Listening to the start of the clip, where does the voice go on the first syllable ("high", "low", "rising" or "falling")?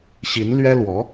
rising